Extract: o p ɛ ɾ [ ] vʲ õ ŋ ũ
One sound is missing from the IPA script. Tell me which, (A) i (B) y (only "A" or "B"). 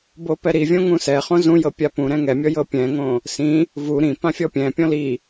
A